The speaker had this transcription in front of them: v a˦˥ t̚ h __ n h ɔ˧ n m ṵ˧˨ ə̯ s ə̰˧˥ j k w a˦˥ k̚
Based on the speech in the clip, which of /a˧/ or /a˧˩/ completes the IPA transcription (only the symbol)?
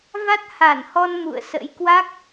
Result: a˧˩